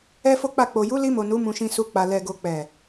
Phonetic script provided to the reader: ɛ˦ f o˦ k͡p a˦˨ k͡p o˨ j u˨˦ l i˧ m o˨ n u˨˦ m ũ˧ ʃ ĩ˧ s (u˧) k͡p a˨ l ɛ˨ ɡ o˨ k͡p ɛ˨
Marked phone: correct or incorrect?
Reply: correct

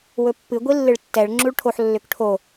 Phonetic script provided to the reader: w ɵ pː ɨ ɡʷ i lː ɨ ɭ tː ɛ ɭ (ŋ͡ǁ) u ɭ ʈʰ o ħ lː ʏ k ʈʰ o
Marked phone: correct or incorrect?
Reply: correct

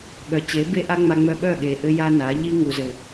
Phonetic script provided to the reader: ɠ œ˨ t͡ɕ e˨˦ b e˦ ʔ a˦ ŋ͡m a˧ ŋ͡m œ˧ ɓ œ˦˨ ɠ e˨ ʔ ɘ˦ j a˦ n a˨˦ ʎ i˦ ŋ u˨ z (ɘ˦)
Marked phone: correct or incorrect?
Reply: incorrect: ɘ˨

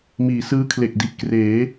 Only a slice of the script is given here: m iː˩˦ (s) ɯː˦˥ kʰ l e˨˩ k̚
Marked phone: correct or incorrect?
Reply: correct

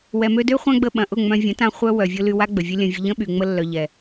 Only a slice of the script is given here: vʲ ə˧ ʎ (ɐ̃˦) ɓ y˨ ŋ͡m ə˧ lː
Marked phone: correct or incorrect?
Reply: incorrect: ə̃˦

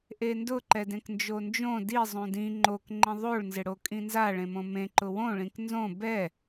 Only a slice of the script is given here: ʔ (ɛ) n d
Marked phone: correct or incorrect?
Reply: incorrect: e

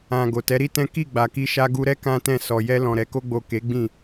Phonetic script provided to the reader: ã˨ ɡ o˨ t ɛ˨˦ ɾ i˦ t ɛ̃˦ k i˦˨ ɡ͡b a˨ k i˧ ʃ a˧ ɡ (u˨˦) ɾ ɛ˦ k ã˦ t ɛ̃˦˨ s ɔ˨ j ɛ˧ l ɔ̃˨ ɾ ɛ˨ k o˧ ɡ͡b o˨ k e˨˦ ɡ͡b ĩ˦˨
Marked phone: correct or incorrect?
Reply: incorrect: u˧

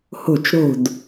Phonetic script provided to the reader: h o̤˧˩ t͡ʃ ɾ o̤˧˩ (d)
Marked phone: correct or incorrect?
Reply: correct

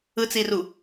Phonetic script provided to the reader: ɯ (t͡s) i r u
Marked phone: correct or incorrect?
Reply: correct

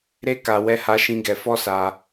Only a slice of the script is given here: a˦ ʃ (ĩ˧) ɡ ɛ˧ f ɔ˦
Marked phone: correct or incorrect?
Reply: incorrect: ĩ˦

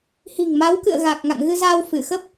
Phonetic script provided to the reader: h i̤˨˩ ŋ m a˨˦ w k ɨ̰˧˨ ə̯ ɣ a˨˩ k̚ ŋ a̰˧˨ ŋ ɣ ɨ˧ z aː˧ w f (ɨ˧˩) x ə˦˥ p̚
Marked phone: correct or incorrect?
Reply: correct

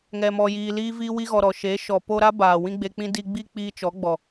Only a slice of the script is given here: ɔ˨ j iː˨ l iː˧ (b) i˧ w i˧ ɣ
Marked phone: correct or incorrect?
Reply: incorrect: v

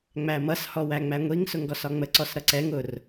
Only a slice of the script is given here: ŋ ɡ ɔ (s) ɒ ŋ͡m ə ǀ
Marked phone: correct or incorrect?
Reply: correct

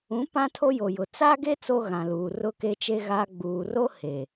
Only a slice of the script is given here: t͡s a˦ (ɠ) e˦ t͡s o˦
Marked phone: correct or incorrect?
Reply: incorrect: ɡ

